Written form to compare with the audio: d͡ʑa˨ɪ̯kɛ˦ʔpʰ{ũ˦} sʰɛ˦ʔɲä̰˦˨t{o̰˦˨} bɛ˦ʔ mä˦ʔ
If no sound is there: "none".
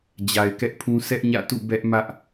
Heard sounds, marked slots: ũ˦, ṵ˦˨

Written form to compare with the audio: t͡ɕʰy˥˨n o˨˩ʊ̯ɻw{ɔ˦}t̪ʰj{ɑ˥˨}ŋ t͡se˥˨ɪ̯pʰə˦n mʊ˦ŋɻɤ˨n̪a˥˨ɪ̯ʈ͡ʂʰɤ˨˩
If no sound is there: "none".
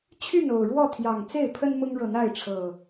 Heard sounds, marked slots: ɔ˥˨, ɑ˨˩

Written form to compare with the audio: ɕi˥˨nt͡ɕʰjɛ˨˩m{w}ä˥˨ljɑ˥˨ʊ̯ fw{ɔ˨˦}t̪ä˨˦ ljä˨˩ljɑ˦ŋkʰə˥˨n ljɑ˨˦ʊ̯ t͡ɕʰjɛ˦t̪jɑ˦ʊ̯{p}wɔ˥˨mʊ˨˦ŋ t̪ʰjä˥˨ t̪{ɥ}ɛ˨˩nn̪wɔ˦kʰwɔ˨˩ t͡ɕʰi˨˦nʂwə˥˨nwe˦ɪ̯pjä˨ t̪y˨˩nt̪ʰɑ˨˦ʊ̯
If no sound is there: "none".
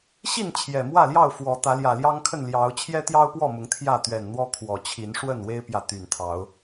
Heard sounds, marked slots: w, ɔ˨˦, p, ɥ

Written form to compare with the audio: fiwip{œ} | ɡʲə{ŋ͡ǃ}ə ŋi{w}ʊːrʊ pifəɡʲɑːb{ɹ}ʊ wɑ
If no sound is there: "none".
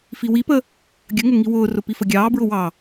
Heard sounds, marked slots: ə, ŋ, w, ɹ

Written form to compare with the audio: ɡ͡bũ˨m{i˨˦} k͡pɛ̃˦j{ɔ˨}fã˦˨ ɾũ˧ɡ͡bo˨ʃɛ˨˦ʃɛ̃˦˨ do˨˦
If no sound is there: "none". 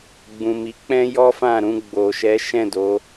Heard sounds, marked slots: i˨˦, ɔ˦

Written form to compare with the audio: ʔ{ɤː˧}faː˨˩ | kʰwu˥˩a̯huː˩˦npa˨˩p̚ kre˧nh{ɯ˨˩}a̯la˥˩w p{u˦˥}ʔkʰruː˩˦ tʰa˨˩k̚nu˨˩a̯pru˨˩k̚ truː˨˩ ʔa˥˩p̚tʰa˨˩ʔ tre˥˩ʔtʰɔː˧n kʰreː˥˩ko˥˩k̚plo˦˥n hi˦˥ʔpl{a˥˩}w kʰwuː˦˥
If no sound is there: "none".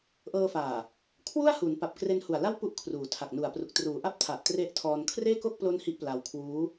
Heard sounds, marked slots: ɤː˧, u˨˩, u˥˩, a˧

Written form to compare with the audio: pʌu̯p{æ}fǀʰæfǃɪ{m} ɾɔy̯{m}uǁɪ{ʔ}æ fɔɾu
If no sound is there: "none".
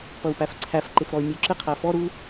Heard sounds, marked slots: æ, f, mʲ, qʰ

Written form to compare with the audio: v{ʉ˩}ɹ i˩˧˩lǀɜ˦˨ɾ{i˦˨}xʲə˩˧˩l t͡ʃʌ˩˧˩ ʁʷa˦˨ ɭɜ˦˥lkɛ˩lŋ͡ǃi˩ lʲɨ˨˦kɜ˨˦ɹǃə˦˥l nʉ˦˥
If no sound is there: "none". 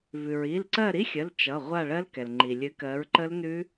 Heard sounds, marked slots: ʉ˩, i˦˥

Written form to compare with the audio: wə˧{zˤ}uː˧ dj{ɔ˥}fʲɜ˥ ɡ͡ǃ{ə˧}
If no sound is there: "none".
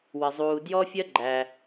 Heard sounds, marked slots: zˤ, ɔ˥, æ˧

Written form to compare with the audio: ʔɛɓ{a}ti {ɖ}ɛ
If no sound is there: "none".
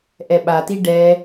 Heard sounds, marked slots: a, ɖ

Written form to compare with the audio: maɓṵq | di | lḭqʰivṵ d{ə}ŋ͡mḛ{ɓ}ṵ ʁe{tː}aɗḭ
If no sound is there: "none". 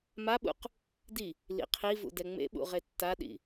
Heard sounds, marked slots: ɛ, ɓ, tː

